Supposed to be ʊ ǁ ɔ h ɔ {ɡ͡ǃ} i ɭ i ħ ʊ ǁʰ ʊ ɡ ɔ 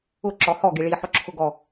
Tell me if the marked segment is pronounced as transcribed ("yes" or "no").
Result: no